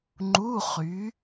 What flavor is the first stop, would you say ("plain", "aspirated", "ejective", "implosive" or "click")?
click